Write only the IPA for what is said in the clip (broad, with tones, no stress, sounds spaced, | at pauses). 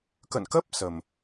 k ə̰˧˨ n k ə˦˥ p̚ s ə˨˩ m